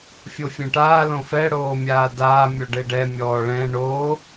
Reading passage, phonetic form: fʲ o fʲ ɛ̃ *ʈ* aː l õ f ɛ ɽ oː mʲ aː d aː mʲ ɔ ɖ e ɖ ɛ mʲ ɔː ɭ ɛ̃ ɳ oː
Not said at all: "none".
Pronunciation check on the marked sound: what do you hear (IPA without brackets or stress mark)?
ʈ